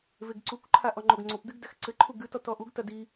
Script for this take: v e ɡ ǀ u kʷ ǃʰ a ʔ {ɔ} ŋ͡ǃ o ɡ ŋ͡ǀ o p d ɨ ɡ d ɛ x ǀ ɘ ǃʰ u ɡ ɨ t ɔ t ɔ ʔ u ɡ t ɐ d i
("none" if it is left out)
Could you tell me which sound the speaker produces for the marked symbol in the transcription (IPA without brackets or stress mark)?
ɔ